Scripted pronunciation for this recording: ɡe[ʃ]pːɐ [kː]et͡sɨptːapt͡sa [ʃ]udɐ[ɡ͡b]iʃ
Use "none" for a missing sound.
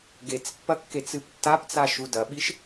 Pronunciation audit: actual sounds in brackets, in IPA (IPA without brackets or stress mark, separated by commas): t͡s, kː, ʃ, ɓ